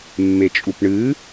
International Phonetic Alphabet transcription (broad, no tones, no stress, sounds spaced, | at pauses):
mː e t͡ʃʼ u p ɳ ɨ